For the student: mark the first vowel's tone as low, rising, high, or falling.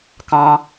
low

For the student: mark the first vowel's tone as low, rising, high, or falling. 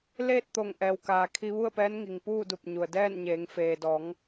falling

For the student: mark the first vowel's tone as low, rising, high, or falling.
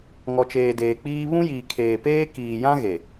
low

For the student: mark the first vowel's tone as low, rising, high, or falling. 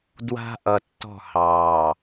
high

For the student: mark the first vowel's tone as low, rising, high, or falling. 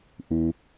low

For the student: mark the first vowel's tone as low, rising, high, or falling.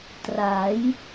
rising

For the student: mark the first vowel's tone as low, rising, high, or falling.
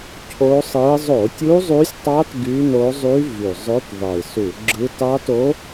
rising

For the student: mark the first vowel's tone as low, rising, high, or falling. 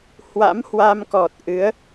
rising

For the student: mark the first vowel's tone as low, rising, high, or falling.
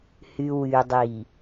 low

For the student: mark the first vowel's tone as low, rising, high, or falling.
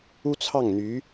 high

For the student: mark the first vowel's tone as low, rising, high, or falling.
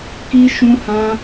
high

